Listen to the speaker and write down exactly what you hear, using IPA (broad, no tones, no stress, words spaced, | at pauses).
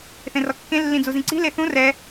θẽrɔkːẽ lːĩd͡zuzĩǀi̤ leθũ rɛ